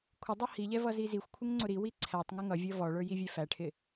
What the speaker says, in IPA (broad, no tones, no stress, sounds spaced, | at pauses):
kʷʰ ɪ dˤ ʌ h i ʎ ɛ v ʌ z i z i xʷ kʷʰ ɪ ŋ ŋ͡ǀ ʊ ɾ i w i ǀʰ æ tˤ ŋ ɪ ŋ ʌ vʲ ʌ v ɔ ɭ ə˞ j i vʲ ɛ f æ ʈʰ ɪ